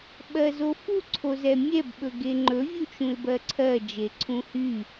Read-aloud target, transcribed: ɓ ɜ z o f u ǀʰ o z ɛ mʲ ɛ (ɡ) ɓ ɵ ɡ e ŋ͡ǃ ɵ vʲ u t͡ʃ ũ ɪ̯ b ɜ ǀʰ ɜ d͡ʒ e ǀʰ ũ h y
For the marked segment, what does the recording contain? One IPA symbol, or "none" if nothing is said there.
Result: b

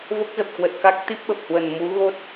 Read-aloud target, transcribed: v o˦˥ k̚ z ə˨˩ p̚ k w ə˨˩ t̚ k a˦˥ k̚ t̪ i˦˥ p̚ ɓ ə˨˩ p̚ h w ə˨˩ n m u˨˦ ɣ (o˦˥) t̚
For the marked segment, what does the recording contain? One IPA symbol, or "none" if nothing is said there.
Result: o˦˥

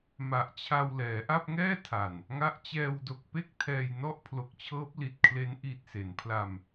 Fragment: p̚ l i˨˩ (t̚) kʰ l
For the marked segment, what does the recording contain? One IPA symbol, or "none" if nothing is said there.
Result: t̚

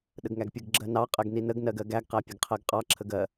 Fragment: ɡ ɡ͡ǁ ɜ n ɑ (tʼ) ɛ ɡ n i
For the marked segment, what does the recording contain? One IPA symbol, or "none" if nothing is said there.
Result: qʼ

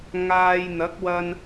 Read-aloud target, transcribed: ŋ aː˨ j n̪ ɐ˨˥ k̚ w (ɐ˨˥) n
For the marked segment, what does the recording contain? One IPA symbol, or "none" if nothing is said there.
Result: ɐ˧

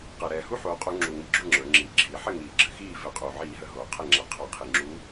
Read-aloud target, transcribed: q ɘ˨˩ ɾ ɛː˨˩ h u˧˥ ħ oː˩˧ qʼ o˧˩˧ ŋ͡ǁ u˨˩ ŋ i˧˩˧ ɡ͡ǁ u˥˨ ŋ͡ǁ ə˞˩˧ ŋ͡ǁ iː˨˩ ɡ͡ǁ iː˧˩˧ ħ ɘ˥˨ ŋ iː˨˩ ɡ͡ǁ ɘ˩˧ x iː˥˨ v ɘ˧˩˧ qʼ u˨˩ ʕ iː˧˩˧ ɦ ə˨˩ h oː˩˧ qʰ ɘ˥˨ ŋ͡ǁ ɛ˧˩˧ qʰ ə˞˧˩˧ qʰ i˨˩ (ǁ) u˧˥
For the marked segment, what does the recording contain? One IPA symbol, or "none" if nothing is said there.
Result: ŋ͡ǁ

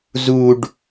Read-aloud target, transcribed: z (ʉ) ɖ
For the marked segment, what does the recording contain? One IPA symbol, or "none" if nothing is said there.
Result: u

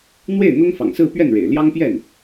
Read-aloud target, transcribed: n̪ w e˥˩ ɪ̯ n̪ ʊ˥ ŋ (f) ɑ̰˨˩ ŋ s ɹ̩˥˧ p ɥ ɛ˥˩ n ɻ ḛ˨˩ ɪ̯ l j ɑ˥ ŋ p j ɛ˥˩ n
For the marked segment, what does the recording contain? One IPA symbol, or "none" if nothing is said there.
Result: f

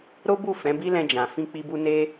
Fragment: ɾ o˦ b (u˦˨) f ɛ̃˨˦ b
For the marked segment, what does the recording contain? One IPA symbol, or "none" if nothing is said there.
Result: u˦˨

